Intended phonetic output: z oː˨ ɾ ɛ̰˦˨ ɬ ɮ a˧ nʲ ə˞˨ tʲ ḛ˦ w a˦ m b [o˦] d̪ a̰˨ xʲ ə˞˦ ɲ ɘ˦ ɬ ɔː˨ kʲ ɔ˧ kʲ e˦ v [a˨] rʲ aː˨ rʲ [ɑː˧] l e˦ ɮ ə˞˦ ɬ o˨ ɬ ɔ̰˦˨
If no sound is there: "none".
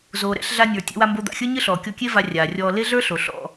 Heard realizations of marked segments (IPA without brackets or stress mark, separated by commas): o˦, a˧, ɔː˧